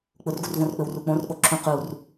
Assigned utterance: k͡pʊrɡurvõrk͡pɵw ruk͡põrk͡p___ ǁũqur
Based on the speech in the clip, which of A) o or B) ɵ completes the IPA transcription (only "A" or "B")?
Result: A